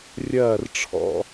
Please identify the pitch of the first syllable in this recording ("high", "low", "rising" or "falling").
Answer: falling